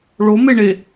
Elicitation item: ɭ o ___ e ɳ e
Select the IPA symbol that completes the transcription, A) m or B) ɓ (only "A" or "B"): A